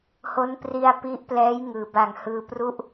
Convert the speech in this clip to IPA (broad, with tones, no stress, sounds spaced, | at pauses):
h o˦˥ n p r i˧ a̯ p i˦˥ ʔ p l ɛː˦˥ j ŋ ɯː˩˦ b a˨˩ ŋ h ɯː˧ p r u˦˥ ʔ